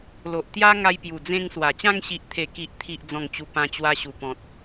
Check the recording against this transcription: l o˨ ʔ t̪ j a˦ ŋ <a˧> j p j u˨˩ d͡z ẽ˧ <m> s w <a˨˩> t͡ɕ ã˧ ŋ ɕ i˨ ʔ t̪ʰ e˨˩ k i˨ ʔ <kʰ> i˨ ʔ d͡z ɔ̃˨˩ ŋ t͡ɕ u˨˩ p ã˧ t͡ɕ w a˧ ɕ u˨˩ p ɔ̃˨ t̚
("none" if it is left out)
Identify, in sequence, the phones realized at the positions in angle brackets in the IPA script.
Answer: a˧, ŋ, a˨˩, t̪ʰ

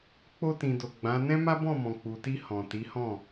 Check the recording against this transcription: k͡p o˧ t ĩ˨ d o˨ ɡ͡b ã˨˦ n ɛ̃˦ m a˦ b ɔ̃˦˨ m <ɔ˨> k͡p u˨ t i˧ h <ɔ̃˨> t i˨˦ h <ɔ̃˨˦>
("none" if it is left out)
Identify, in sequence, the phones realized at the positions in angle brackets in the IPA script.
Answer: ɔ̃˨, ɔ̃˨, ɔ̃˦˨

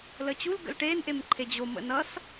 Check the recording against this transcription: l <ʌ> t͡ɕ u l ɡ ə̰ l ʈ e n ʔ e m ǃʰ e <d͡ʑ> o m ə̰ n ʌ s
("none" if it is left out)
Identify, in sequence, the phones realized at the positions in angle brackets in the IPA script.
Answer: ə, d͡ʑ

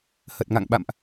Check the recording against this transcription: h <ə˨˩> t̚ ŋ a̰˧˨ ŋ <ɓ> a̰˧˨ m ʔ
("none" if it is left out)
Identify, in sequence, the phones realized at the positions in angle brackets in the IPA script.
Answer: ə˨˩, ɓ

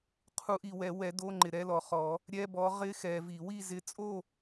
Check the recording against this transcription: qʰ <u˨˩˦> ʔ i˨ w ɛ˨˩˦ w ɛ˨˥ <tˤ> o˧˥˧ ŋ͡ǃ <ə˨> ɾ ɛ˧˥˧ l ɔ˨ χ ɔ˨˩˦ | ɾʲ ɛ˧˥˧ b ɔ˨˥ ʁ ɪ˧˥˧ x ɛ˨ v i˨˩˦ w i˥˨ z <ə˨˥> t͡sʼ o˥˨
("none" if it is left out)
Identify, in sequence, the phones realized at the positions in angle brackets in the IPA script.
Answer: u˨˥, d, ɪ˨, ɪ˨˥

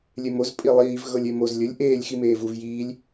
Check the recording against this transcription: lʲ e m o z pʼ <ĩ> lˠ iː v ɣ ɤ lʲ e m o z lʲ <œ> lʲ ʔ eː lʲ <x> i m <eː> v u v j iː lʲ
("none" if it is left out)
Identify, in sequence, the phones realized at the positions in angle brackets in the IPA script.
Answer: i, ɵ, x, eː

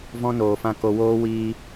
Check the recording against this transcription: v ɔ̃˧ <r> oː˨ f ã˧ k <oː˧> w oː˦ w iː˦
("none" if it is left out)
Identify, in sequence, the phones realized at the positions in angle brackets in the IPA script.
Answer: n, o˧

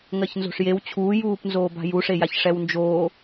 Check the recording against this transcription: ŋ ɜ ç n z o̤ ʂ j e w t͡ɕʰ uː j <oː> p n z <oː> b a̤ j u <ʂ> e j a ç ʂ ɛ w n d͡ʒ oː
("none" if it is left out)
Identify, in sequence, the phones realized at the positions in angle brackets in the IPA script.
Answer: uː, oː, ʂ

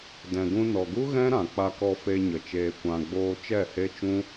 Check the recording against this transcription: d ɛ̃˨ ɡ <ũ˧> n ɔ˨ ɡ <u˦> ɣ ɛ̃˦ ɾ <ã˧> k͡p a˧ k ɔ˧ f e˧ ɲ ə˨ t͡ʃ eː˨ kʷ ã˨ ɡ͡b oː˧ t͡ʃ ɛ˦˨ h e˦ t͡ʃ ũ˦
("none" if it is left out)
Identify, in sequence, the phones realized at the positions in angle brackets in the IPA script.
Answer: ũ˧, u˦, ã˨

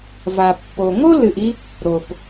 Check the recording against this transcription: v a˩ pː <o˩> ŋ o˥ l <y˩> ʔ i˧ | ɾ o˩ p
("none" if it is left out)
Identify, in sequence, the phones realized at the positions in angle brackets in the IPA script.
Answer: o˩, ɨ˩

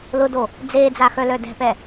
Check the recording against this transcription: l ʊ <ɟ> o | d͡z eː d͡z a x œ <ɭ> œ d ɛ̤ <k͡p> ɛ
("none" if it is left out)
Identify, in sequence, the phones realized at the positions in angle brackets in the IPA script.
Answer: d, l, p

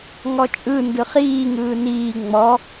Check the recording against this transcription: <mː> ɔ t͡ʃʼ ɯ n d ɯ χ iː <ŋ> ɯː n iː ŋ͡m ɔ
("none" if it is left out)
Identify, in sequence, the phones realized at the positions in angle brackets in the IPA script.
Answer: ŋ, ŋ

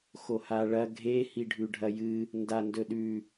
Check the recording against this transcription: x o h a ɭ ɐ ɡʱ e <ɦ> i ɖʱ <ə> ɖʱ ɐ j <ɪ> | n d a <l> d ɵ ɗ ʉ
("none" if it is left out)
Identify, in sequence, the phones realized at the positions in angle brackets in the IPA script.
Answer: h, ʉ, ɨ, n

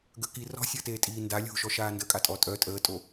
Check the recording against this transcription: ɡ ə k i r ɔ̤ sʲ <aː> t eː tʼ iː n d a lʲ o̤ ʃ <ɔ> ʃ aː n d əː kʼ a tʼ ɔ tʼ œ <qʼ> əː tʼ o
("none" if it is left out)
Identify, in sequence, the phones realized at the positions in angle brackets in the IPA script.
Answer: əː, ɔ, tʼ

